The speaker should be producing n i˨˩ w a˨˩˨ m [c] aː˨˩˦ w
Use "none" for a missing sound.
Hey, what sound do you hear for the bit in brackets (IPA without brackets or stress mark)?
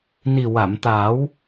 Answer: t̪